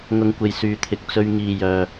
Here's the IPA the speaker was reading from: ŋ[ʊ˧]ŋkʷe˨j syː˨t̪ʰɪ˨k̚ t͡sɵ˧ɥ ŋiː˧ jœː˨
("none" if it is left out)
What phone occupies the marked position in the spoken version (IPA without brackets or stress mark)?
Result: ʊ˧